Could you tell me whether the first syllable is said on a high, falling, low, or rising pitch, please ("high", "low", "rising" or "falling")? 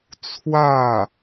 falling